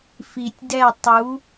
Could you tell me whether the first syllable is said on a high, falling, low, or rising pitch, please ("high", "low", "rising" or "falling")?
low